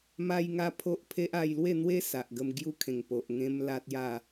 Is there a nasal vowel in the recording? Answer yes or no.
yes